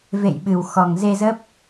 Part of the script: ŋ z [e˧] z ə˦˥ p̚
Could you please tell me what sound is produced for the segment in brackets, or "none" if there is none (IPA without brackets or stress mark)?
e˧